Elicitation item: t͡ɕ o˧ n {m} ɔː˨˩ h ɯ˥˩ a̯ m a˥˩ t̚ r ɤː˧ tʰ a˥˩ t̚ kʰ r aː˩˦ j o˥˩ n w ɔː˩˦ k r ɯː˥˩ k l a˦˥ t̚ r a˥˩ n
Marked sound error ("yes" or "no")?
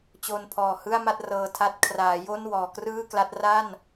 yes